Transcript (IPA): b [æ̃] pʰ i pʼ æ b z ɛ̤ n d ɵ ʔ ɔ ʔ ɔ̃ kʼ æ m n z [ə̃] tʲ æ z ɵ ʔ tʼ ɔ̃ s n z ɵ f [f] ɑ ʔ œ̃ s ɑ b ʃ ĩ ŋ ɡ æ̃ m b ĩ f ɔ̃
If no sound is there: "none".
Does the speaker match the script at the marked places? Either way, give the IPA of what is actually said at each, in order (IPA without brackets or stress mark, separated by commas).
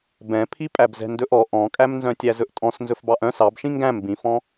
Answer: ɛ̃, œ̃, b